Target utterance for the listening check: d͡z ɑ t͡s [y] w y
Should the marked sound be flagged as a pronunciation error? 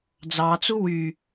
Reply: yes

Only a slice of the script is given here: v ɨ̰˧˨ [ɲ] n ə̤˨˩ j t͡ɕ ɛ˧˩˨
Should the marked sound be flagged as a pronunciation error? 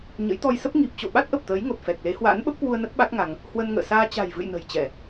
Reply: yes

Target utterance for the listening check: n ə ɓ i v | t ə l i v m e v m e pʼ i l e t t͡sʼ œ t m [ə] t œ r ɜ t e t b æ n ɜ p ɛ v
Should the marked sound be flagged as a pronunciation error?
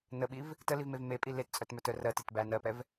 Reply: yes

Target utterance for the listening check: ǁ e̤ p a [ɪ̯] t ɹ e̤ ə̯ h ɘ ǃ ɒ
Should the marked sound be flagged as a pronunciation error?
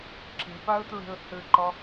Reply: yes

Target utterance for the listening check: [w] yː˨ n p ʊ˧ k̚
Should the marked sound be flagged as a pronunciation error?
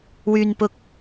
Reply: no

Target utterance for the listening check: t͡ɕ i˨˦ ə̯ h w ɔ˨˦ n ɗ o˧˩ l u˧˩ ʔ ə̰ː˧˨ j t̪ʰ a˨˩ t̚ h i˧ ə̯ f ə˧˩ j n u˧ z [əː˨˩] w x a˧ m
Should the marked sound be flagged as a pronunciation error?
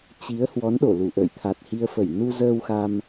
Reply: yes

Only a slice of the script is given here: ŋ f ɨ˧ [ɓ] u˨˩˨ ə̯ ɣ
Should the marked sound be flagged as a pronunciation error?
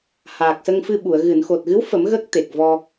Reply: no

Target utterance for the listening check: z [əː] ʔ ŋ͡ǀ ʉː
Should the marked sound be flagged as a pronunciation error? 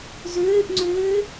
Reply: yes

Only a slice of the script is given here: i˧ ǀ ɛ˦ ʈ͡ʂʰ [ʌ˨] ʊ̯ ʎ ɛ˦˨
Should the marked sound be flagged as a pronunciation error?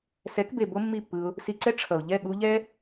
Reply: no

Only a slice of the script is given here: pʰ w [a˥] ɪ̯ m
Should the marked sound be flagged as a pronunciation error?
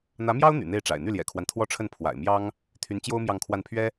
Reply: yes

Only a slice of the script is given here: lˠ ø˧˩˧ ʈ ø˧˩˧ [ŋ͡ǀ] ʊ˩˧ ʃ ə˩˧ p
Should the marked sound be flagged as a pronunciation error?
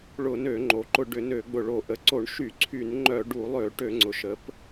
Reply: no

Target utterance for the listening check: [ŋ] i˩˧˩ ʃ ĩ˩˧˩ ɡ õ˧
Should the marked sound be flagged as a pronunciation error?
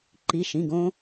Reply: yes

